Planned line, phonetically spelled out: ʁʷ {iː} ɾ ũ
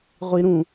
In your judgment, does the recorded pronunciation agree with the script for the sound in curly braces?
no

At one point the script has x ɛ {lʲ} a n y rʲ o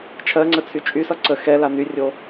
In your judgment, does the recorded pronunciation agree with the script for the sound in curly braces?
no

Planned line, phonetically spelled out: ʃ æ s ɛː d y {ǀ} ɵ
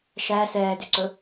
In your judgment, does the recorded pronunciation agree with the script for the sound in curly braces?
yes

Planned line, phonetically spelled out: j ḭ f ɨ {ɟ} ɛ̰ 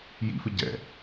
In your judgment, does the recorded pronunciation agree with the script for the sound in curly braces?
yes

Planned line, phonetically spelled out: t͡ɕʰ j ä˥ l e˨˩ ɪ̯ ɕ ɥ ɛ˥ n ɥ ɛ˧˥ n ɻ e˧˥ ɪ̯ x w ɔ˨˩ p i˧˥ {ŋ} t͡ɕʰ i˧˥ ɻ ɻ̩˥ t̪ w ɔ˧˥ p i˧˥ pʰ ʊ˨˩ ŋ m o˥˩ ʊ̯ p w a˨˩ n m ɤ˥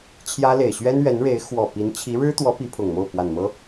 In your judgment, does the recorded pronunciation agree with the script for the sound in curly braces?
no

